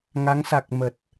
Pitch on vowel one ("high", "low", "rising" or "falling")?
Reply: rising